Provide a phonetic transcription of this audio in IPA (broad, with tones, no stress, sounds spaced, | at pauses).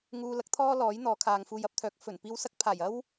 ŋ uː˧ l ɐ˨˥ k̚ t̪ʰ ɔː˥ l ɔː˨˥ j n̪ ɔː˨˥ kʰ aː˨ ŋ f uː˨ j ɐ˧ p̚ t̪ʰ œː˨˥ k̚ f ɵ˨˩ n p iː˧ w s ɐ˥ k̚ pʰ aː˨˩ j ɐ˥ w